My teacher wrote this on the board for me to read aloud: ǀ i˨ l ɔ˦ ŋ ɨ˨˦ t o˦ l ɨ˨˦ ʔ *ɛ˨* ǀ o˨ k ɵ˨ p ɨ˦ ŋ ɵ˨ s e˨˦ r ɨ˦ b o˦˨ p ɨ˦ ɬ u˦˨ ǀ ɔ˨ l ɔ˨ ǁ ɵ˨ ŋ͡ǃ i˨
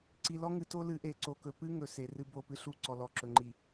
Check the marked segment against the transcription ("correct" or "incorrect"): incorrect